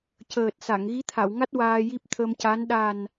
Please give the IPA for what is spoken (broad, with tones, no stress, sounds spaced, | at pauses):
c əː˨˩ t̚ s a˨˩˨ ŋ ɣ i˧˥ t̪ʰ a˨˩˨ w ŋ a˦˥ t̚ w aː˧ j i˦˥ p̚ t̪ʰ ə˧ m c a˧˥ n ɗ a˨˩ n